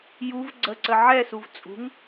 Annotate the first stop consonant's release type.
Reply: click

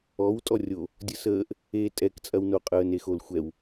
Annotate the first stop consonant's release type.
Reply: ejective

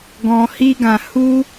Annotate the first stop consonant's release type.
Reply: plain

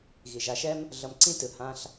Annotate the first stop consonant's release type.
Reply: click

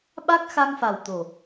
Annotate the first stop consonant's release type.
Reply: implosive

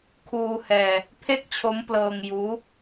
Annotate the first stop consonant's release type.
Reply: aspirated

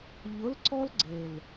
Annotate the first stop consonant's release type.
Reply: click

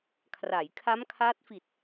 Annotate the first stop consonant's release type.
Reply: aspirated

